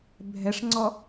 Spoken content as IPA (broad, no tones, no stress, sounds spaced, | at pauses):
bʱ ɛ ʂ ŋ͡ǀ ɔ